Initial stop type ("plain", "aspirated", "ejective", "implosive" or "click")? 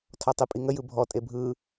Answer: aspirated